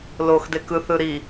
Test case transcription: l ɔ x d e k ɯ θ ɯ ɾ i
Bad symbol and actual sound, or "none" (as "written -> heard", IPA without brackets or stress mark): ɔ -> o